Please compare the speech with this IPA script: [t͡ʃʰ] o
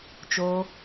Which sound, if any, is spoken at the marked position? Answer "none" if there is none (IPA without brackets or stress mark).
t͡ʃ